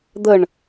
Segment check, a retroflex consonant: present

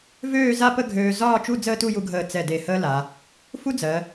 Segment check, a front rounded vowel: present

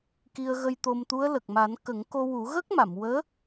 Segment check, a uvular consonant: absent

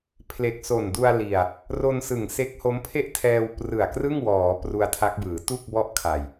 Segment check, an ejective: absent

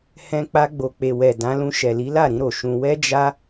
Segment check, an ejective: absent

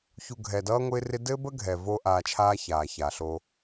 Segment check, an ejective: absent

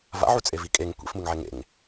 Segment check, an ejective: present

